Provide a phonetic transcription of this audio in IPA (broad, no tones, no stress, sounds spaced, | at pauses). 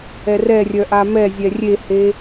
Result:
ɛ r ɛ rʲ œ ʔ a m ɛ zʲ ɛ rʲ e h e